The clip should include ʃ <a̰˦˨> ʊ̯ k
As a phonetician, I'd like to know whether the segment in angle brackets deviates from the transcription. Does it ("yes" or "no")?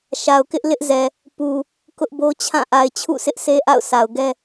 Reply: yes